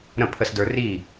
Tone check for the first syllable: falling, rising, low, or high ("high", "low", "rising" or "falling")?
falling